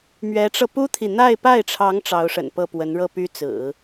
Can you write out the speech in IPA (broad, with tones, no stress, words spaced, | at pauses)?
mɥɛ˧˥ʈ͡ʂɤ˧pu˥t̪ʰi˨ n̪a˥˧ɪ̯pa˥˩ɪ̯ʈ͡ʂʰɑ˧˥ŋ ʈ͡ʂɑ˧˥ʊ̯ʂə̰˨˩npɤ˥˩pwə˧˥n ɻɤ˥˩py˥t͡sɹ̩˨˩˦